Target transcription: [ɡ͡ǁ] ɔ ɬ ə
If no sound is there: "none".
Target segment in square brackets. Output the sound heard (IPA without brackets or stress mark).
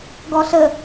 ɡ